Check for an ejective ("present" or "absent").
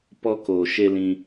absent